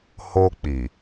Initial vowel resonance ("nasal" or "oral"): oral